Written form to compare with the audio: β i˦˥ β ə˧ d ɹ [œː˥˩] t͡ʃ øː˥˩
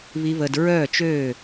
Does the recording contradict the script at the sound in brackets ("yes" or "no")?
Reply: no